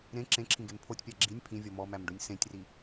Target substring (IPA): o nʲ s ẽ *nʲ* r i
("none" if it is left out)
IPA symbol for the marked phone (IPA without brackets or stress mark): tʲ